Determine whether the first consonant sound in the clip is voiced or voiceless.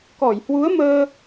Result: voiceless